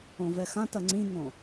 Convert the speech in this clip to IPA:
õ v ɛ x ã t ɐ ŋ͡ǀ ĩ ŋ õ

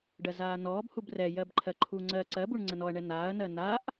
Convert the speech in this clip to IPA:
ɖ ɜ z aː n ɔː b h u b r ɛ j ɜ b ǃʰ ɜ ǃʰ u ŋ͡ǀ ɜ ǀ ɜ b u ɳ ŋ͡ǀ ə n ɔ ɐ̯ ɳ ɛ n aː ɐ̯ n ɜ n a ʔ

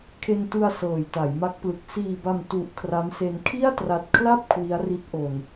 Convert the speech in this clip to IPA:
kʰ e˧ n t ɯ˧ a̯ s ɤː˨˩ j t a˩˦ j m a˦˥ k̚ p l ɯ˨˩ k̚ s iː˨˩ b a˨˩ m t u˨˩ ʔ kʰ r a˦˥ m s e˧ n kʰ i˥˩ a̯ t r a˨˩ t̚ kʰ l a˥˩ p̚ kʰ w i˦˥ a̯ r i˦˥ t̚ ʔ o˨˩ n

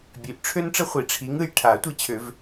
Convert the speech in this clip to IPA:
bʲ ø˨˦ ʔ ʈ͡ʂʰ ø˥ n ʈ͡ʂ ə˥ χʷ i˨˩˦ ʈ͡ʂʰ i˨˦ ŋ ɯ˦˨ j ʈʰ a˨˩˦ tʷ i˦˨ t͡ɕʰ ø˨˩˦ v

